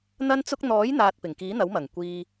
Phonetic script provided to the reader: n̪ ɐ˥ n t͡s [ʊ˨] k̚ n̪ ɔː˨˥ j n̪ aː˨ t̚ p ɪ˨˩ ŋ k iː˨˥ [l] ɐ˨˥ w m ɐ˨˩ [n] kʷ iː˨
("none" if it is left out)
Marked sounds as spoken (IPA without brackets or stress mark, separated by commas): ʊ˥, n̪, ŋ